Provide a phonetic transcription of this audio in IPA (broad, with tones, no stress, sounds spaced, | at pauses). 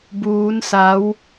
b uː˦˥ n s a˦˥ w